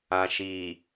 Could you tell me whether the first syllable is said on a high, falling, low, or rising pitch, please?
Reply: low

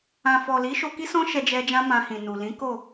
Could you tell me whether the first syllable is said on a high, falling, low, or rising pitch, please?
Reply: low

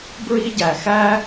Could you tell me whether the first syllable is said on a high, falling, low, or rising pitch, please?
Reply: high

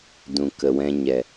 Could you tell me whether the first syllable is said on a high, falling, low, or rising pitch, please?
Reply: low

